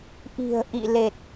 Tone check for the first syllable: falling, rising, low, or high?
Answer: low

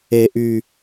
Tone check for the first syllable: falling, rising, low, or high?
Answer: low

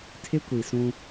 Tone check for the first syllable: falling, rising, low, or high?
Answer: high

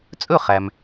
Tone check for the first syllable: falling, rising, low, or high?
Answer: falling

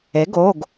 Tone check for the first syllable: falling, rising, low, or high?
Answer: rising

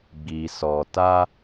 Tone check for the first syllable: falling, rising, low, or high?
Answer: low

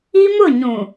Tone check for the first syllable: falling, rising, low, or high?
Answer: high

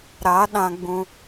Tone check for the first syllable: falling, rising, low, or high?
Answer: rising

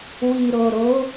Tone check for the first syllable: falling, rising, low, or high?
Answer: low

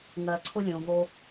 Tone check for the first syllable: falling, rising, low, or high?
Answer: low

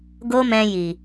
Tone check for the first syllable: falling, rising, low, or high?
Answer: high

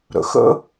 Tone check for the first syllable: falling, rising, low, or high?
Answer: low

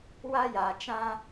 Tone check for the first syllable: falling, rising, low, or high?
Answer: high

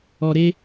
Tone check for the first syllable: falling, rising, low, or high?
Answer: low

